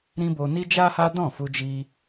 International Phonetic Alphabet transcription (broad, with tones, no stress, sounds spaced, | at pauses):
ɾ ĩ˧ b o˧ n i˦ d͡ʒ a˦ h a˦ d ɔ̃˦˨ f u˧ d͡ʒ i˧